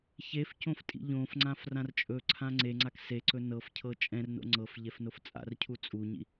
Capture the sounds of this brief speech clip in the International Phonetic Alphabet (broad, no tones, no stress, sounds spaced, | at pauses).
ç e f c õ f tʼ ḭ ʎ õ f ŋ͡ǀ ã f r ã r t͡ʃʼ ɵ ǀʰ ã ŋ͡ǀ e ŋ͡ǀ a k s e ǀ ɵ n ɤ f cʰ ɤ t͡ʃʼ ɛ̃ r n o̰ ŋ͡ǀ ɤ f ʎ ɛ f n o f t͡sʼ a̰ r cʰ u t͡sʼ u ɲ ḭ